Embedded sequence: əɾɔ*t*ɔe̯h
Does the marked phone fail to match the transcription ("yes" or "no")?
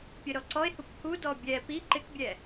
yes